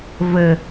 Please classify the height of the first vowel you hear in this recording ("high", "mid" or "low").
mid